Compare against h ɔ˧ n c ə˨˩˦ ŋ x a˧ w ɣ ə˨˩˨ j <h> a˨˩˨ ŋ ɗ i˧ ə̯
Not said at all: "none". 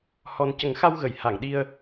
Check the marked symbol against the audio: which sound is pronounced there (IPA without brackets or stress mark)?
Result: h